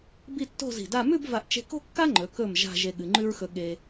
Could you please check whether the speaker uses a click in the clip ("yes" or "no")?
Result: yes